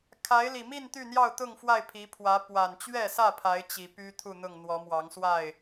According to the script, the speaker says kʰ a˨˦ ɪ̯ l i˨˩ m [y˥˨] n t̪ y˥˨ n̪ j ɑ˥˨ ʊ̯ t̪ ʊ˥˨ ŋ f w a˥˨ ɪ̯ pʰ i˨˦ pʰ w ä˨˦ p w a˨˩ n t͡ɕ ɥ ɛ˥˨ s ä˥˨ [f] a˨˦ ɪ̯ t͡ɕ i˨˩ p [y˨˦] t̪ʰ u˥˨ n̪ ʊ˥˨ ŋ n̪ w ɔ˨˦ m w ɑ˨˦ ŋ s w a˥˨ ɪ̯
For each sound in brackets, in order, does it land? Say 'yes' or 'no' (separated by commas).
no, no, no